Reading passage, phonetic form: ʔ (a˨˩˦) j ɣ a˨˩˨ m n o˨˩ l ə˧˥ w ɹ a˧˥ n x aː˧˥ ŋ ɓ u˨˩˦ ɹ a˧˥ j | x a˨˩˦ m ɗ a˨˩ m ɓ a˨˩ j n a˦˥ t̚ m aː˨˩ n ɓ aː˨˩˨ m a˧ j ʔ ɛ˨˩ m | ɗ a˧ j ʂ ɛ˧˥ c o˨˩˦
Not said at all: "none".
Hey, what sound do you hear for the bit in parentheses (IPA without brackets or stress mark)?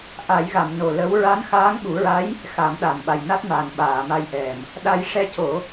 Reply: a˨˩˦